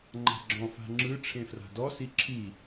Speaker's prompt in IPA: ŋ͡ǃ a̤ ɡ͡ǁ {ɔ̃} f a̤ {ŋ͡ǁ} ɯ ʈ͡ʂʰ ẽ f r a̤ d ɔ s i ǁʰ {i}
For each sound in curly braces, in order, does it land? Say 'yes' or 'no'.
yes, yes, yes

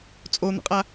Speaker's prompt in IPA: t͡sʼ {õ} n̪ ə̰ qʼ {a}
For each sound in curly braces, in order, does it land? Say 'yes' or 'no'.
no, yes

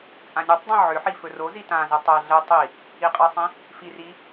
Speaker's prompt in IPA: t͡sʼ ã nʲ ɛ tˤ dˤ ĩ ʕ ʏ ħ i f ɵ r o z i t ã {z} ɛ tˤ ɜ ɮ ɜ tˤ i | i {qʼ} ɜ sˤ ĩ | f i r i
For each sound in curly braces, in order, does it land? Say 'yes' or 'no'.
yes, yes

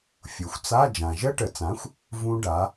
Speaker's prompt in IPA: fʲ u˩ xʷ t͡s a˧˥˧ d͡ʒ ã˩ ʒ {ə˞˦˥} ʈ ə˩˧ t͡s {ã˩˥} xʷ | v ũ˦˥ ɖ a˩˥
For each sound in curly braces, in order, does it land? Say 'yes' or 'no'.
no, yes

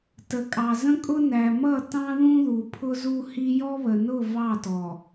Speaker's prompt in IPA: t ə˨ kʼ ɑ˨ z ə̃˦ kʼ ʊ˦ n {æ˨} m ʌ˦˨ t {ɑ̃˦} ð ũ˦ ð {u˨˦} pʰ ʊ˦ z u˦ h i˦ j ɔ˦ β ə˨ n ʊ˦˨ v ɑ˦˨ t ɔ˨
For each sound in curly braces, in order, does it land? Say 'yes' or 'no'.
yes, yes, no

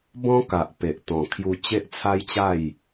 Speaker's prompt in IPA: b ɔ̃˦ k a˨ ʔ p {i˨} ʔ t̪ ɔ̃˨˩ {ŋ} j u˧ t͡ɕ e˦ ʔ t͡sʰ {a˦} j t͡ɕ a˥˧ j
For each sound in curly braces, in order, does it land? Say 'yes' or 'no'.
no, no, yes

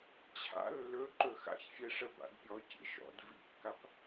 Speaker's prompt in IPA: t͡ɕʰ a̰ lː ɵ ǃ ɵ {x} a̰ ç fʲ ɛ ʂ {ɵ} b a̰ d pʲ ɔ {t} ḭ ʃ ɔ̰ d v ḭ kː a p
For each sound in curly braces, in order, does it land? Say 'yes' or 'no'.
yes, no, no

